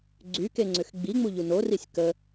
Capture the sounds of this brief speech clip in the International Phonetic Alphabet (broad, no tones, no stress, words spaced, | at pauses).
ɡ͡ǀykeŋ͡ǀʏx ɡ͡biŋ͡muʎu norisʲ kə